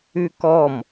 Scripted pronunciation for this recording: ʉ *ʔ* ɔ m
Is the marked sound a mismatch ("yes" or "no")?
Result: yes